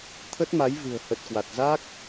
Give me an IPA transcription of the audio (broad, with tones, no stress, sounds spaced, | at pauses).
t̪ʰ ə˦˥ t̚ m a˨˦ j v ɨ̤˨˩ ə̯ h ə˨˩ t̚ k w a˨˩ t̚ z a˦˥ k̚